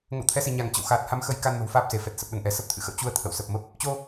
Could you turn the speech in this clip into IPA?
ŋə̰˧˨wt̪ʰɛ˨˦si˧˩ ɲa˧˩ŋt͡ɕə̰˧˨wxaː˨˩t̚ ha˨˦mxə˨˦jka˧n mə̤˨˩wfaː˦˥p̚se˧˩fɛ˨˩t̚ sə˨˩p̚ɗə˧˩nʔɛ˧˩ sə˦˥p̚t̪ʰɨ̰˧˨xə̰˧˨w t͡ɕu˧ə̯ t̪ʰə̰˧˨w sə˨˩p̚mə˦˥p̚ | t͡ɕo˧

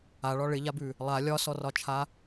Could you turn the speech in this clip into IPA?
aɭɒ ɭɪʎabʉ | lˠa lʲɒsɔrɒt͡ʃʰa

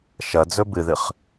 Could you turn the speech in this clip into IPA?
ʃɐd͡zɵ bɨðɨχ

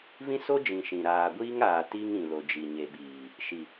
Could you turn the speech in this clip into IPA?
vĩ˦so˦d͡ʒĩ˨ ʃĩ˨ ɾaː˨ɡʷiː˦ŋaː˨ ti˦ŋ ĩ˨lo˨d͡ʒi˨ ɲe˨ɓiː˨ | ʃi˨

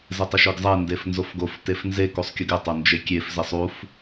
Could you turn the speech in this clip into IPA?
zɪtˤɪʃøɡzˤe ndefnzofɡof tefnze kusˤkʲuɡɪ tˤond͡ʒekʲef zesˤuf

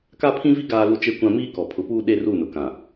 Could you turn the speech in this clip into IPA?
ka˦pʰĩ˦vi˦ ɡaː˦lu˦t͡ʃe˦kʷã˦ miː˦kɔ˨pʰʊ˨˦puː˦ ɗe˦ru˦˨nʊ˨kã˨

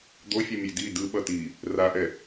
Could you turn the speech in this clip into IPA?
d̪ofʲo mʲedi dɯ ɓʌti | raʔɛ

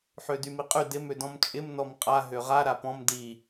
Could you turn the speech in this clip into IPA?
ħødymiqʼy dɪm ødɔ̃mt͡ʃʼɪm nɔmqʼa ɦøʁa ɾapɔ̃m di

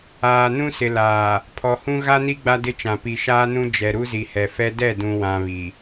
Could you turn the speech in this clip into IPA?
aː˨nũ˦sɪ˨laː˨ | pʰɔ˨hũ˦ ɣa˦ni˦ ɡ͡ba˦dɪ˦t͡ʃã˨ pi˨ʃaː˦nũ˦ d͡ʒɛ˨ ɾu˦zi˨hɛ˨fɛ˦ dɛ˦˨dũ˨wã˨ βi˨

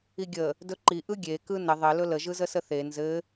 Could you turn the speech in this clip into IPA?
iɡʲə | dɵǃi ʔɯɡʲe kɯnə ðˤɘ lɵlə ʒɯzəsəθe nzɘ

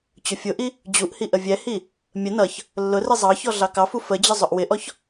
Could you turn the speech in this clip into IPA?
t͡ɕʊfʲʊʔi | d͡ʑuʔhi ʔəvʲɛhi | mʲə nʌç | lːʊri zˤɑçɔ ɮɑkɑfu fəd͡ʑə zˤʊʔwɪʔɔç

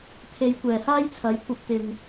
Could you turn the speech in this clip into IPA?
t̪ʰe˨˧jkʷɛː˨˩haː˥jt͡sʰɐ˨˥j kʷɐ˧p̚t̪ɪ˨ŋ

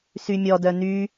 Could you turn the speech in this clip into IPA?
symʲɔdœ ny

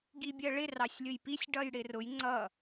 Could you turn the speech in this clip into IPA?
ɡibʲɜɭɪ rɑsʲlʲʊjpisʲ ɖʌjɽɪrʊj ŋ͡ǀʌ

